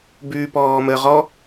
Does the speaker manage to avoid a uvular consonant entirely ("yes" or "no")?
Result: no